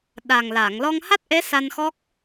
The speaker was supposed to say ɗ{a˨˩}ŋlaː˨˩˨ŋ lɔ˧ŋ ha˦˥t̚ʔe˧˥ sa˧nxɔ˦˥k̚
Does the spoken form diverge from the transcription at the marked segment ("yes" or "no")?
no